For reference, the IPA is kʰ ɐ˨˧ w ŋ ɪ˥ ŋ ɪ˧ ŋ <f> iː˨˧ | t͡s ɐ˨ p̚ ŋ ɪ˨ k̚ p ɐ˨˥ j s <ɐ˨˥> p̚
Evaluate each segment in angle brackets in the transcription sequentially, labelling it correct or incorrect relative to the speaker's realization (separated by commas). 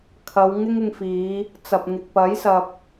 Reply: correct, incorrect